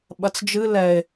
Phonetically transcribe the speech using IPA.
ɓ ɐ t͡s d͡ʒ ɨ l ɛ e̯

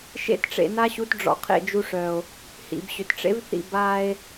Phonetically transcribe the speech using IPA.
ʃ ḛ˧ t ʈ͡ʂ ḛ˨ n a˧ ɕ u˨˦ t ɖ͡ʐ ɔ̰˧ qʰ ḛ˦˨ d͡ʒ u˧ ʂ œ˨ o̯ | h ḭ˨ b ɕ ʏ˨ t ʈ͡ʂ ḛ˦ v θ ḭ˦˨ b a˦ e̯

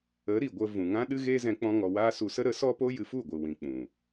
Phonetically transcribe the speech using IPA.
ə˨˦ ɾ i˨ ɡʷ ə˧ v ũ˨ ŋ ã˦ ɗ ɨ˦ ɣ eː˦ z ɛ̃˧ k͡p ɔ̃˦ ŋ ɔ˧ w aː˧ s u˧ s ə˦ ɾ ə˨˦ s ɔ˦ p o˦ j ɨ˧ f u˦˨ ɡʷ ɨ˨ w ĩ˨ k͡p ũ˨

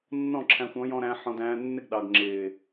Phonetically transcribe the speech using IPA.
nː ɔ̃˦˨ ǁʰ æ̃˧ xʷ ɔ̃˨˦ j ɔ̃˧ ɾ æ̃˧ ħ ɔ̃˧ d æ̃ː˧ nː ɪ˦ ɡ ɗ ɑ˨ ɡ ŋ͡ǁ ɪː˨

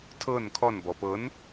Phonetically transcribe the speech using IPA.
tʰ ɤ n kʰ ɔ n b ɔ p ɤ n

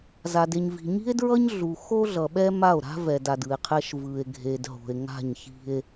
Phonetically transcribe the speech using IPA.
z a˨ d e˨ ɲ v i̤˨ ɲ i̤˦ e̯ d ɹ ʌ˦ ɲ ɮ u˨ x o˦ ɮ ʌ˨ ɓ ɛ˦ m a˦˨ o̯ ɾ a̤˦ v ɛ˨ d a˨ d ɯ˨ e̯ qʰ ɛ˦ ʃ v ɯ˨ e̯ ɡʱ e˨ d ɦ o̤˨ e̯ ŋ a̤˦˨ ɲ ç i̤˦ e̯

